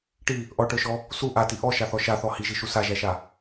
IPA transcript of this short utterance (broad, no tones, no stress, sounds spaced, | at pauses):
ʈ i | ʔ ɔ ʈ ə˞ ʃ ɔ | s u ʔ a t i ʔ ɔ ʃ a θ ɔ ʃ a θ ɔ h i ʒ i ʃ u s a ʒ æ ʃ a